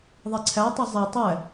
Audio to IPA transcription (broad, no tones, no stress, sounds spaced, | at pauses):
ðˤ e ǀʰ æ tˤ i zˤ æ tˤ æ